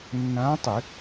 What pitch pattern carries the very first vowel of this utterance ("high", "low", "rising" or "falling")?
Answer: rising